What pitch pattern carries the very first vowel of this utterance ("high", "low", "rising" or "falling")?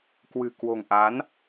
low